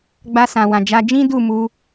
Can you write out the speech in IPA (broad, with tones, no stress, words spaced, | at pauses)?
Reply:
ɡ͡ba˧ sã˨wã˨d͡ʒa˧ d͡ʒĩ˦du˦˨ mu˧